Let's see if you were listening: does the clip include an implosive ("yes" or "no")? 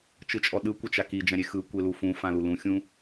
yes